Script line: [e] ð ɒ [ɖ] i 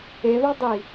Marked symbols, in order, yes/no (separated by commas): yes, no